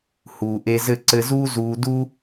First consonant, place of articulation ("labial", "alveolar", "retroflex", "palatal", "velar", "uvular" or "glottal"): glottal